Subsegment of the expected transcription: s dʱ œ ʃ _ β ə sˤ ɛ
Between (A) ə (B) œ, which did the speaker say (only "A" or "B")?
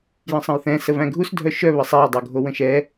B